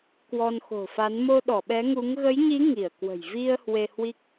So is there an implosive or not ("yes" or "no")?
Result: yes